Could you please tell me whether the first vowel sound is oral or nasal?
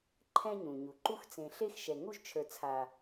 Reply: nasal